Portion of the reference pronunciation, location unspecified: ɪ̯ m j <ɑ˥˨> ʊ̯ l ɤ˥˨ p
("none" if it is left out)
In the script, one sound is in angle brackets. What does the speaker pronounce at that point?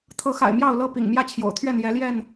ɑ˥˨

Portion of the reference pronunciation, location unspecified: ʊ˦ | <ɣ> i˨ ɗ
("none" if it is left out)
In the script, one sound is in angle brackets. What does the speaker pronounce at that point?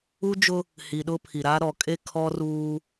h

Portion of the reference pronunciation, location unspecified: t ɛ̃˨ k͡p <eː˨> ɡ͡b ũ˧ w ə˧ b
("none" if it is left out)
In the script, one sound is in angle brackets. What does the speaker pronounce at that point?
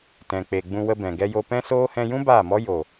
e˨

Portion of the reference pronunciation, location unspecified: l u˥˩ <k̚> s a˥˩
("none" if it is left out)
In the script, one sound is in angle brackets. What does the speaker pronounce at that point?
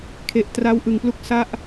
k̚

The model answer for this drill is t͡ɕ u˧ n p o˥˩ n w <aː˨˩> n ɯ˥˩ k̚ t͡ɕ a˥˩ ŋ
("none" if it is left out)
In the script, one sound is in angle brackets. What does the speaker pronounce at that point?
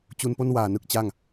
aː˨˩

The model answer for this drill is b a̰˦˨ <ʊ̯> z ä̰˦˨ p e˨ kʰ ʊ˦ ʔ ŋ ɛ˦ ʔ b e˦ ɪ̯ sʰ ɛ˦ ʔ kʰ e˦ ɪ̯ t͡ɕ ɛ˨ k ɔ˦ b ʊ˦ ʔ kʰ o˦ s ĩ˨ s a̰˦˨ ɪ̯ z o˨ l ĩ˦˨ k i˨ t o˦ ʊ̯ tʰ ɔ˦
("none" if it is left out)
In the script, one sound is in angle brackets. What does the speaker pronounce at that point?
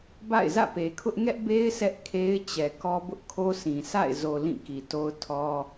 ɪ̯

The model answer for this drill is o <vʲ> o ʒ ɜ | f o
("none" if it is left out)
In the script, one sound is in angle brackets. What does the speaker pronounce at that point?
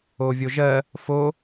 vʲ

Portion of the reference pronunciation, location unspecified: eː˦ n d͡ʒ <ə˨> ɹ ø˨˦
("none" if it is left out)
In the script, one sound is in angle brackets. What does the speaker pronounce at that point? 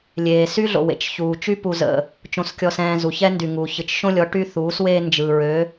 ɯ˨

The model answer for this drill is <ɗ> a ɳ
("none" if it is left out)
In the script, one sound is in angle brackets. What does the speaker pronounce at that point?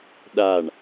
ɗ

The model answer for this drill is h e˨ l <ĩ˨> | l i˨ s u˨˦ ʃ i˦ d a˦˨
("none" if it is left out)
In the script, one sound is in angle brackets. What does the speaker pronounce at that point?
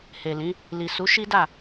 ĩ˨˦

